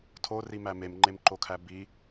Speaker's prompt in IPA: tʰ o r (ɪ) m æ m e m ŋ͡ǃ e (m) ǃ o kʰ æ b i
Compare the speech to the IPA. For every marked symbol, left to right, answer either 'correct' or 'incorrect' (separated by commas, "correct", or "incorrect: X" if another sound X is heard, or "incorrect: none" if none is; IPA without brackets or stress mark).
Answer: incorrect: i, correct